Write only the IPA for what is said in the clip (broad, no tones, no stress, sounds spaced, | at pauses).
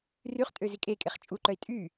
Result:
r y χ tʼ ø z i kʼ e kʼ e χ t͡ʃʼ u ǃ œ i̯ tʼ y